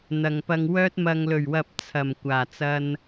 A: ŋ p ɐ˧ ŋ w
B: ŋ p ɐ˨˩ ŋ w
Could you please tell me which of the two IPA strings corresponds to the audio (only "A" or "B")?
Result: A